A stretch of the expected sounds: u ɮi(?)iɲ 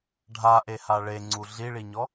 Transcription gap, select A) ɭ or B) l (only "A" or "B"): A